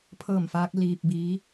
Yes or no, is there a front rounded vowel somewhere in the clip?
no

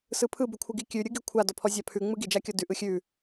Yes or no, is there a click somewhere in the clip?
no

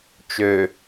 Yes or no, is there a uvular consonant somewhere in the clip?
no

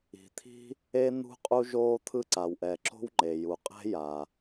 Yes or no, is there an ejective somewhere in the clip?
yes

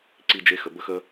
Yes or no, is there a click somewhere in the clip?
yes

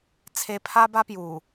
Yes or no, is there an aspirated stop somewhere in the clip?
yes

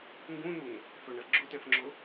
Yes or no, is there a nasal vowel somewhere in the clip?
yes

